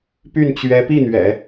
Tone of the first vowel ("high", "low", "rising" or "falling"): falling